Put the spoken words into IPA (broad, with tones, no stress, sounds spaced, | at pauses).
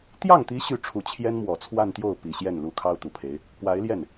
t̪ j ɑ˥˩ ŋ t̪ i˧˥ ɕ y˥˩ ʈ͡ʂʰ u˨˩ t͡ɕʰ j ɛ˥ n m w ɔ˨˩ t͡sʰ w a˥˧ n t̪ j o˥˩ ʊ̯ p i˨˩ ɕ j ɛ˥˩ n l u˧˥ kʰ ɑ˥ ʊ̯ t̪ u˨˩ pʰ e˧˥ ɪ̯ | p w a˧˥ ɪ̯ l j ɛ˥˩ n